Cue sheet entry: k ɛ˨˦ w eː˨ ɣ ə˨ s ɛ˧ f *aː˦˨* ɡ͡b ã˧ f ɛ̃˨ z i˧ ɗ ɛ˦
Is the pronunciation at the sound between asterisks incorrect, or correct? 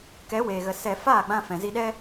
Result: correct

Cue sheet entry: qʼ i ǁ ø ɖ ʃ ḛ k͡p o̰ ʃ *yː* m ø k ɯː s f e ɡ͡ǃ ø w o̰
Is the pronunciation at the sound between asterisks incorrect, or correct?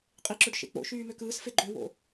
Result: correct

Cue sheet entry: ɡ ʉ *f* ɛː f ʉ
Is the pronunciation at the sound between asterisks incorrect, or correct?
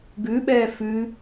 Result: incorrect: ɓ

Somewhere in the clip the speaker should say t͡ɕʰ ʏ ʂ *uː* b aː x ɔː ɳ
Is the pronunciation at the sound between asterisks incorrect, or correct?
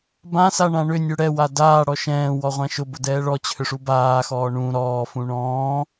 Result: incorrect: u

